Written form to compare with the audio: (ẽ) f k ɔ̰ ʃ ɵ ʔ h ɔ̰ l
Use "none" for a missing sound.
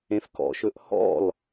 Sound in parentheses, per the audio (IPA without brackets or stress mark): ẽ